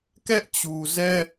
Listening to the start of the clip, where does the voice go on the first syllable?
high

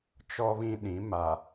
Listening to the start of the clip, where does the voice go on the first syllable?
high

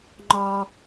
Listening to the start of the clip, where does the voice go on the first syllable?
low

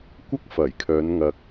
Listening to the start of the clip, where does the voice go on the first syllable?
high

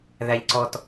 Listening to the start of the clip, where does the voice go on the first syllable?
high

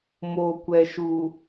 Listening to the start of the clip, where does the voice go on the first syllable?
low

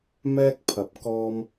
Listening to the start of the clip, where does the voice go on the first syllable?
high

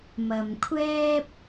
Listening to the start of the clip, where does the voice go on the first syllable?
low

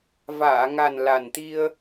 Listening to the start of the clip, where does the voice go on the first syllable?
low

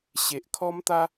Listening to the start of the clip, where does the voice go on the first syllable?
low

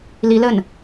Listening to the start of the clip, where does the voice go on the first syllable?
rising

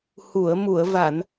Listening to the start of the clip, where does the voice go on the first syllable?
low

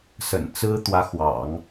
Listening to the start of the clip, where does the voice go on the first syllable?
low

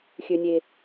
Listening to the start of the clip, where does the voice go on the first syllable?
low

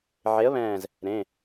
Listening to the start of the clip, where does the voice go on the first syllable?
rising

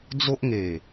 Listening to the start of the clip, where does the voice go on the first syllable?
high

